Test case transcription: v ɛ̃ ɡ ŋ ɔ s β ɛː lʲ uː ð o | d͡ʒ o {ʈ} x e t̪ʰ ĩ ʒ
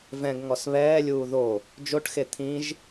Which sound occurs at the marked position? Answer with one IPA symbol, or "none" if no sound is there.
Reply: ʈ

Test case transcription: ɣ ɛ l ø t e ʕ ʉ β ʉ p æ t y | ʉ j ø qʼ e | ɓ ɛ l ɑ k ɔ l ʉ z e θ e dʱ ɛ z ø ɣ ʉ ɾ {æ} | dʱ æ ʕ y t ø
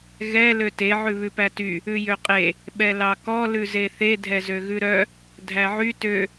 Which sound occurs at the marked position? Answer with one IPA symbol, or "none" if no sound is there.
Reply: œ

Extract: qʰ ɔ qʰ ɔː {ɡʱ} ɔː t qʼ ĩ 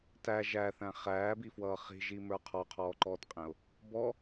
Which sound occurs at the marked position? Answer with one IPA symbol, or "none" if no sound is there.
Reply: ǃ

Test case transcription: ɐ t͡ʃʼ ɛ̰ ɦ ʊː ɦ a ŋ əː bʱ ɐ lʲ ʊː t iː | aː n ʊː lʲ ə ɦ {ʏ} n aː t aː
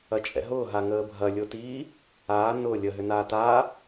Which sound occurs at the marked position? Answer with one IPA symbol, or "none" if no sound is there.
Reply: ʏ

